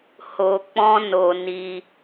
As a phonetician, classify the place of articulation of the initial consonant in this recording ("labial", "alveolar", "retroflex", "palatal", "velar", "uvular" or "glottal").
glottal